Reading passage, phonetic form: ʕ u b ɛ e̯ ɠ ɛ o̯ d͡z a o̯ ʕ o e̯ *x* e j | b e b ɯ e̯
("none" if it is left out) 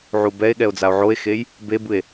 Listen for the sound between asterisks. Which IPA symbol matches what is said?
x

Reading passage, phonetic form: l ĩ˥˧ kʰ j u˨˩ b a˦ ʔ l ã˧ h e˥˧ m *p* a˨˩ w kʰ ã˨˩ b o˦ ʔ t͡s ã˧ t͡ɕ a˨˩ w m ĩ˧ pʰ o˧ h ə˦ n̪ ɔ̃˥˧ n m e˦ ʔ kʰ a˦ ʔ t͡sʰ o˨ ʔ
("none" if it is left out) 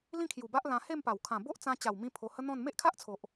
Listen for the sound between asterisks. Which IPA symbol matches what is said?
p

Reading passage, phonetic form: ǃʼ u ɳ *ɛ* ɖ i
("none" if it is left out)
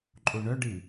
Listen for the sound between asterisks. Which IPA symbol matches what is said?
œ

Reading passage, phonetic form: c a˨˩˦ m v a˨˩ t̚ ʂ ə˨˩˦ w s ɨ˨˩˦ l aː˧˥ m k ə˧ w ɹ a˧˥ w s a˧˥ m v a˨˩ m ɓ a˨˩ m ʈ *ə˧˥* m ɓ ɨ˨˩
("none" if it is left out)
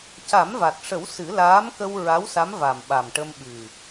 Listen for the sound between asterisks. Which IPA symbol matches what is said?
ə˧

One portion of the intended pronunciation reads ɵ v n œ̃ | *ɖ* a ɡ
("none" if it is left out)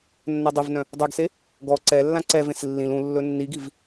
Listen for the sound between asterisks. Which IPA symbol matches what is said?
dˤ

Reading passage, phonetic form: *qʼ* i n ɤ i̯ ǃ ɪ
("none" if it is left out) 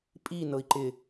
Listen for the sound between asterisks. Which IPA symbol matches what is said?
pʼ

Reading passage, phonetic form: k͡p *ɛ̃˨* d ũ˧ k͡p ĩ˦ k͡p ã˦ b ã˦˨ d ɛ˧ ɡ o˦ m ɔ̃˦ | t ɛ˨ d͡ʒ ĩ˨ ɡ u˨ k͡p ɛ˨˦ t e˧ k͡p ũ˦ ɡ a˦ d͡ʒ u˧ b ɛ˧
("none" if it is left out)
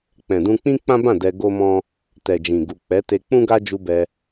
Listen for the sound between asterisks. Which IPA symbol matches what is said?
ɛ̃˨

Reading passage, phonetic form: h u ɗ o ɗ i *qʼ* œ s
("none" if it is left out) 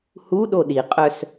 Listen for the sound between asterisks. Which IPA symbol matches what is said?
qʼ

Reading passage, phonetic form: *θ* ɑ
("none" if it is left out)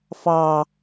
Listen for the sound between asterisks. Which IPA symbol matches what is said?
f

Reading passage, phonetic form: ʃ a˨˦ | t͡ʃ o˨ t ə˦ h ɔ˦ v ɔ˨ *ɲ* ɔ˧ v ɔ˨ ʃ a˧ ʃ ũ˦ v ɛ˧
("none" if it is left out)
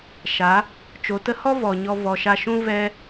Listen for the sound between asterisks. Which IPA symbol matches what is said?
ɲ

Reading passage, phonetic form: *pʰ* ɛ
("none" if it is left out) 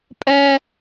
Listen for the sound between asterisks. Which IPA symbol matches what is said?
pʼ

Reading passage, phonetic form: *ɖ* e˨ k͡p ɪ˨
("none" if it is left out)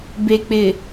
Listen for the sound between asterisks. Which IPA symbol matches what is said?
b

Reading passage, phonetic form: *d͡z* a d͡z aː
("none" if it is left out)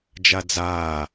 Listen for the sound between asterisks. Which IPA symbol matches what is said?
d͡ʒ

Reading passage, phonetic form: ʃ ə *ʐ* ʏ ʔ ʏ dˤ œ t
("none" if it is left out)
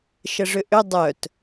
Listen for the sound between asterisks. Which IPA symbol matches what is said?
ʐ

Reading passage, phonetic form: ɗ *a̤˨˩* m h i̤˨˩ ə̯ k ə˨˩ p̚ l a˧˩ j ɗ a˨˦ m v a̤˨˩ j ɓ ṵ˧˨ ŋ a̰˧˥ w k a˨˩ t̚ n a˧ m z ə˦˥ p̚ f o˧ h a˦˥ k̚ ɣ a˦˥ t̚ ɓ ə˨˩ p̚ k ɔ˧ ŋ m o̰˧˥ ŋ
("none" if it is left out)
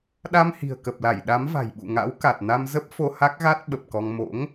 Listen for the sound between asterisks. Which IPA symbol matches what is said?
a˧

